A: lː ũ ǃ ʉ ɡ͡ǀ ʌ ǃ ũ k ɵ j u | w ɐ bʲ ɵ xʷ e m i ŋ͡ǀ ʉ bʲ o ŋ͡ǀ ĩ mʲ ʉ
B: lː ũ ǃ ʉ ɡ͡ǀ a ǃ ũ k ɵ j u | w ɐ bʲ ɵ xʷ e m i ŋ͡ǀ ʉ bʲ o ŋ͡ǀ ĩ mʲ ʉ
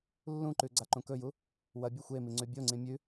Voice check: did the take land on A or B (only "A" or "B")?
B